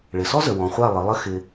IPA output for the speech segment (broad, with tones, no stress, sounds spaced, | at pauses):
ɭ ɪ˨ s ɔ˦ z ə˨ w ɔ̃˨ χʷ a˦˨ lˠ ɪ˨˦ lˠ ə˦ x ɪ˧